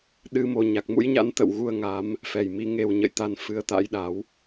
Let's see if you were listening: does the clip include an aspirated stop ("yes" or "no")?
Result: no